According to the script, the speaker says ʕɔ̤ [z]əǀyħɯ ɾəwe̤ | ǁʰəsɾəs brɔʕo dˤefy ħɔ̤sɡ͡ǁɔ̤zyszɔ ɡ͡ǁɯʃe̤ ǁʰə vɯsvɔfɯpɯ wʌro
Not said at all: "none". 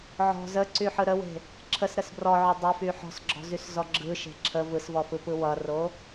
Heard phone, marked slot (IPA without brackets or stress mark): z